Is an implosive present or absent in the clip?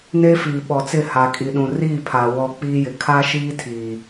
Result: present